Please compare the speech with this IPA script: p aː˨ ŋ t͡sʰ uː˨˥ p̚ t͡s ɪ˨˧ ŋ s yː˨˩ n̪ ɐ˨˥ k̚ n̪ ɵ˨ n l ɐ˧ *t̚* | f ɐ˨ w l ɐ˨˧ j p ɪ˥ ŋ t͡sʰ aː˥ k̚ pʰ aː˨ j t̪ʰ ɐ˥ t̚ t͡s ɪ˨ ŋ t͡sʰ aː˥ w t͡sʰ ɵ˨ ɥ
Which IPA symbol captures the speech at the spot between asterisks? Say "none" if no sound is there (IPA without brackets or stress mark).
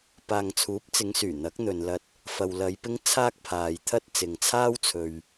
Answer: t̚